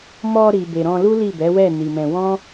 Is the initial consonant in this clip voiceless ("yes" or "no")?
no